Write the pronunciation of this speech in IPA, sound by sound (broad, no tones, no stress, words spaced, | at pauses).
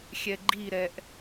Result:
xʲɛɡ͡ǃiɾɛʔ